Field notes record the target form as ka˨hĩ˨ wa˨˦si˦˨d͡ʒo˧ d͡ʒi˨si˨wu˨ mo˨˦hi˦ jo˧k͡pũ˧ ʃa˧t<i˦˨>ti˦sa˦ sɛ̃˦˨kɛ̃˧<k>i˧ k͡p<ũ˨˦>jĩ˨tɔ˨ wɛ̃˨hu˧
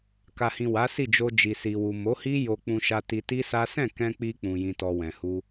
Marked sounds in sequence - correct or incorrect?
incorrect, incorrect, incorrect

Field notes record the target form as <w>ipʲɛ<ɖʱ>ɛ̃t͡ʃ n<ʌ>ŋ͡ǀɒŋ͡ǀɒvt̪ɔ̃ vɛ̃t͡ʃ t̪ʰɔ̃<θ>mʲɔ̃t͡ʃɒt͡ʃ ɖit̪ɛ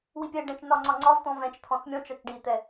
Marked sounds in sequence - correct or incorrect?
correct, incorrect, incorrect, correct

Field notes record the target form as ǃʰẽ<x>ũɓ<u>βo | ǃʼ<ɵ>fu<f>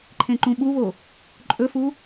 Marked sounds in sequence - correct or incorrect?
incorrect, correct, correct, incorrect

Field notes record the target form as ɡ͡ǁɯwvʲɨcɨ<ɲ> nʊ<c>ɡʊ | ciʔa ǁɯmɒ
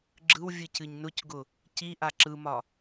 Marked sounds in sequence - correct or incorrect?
correct, correct

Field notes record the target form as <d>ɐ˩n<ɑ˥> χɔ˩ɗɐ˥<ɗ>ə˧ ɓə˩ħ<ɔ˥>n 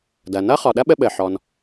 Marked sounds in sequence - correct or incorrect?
correct, incorrect, incorrect, incorrect

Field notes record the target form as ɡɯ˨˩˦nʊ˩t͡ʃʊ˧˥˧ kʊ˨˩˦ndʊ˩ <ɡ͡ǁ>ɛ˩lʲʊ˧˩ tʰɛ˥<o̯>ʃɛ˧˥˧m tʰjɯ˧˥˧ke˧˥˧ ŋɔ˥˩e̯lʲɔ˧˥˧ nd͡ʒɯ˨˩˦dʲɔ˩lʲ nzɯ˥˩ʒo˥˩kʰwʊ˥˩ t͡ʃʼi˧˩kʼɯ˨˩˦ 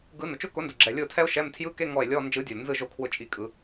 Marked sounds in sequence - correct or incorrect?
correct, correct

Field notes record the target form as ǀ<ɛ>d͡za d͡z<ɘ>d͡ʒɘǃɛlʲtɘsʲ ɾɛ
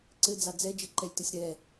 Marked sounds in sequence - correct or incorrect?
incorrect, incorrect

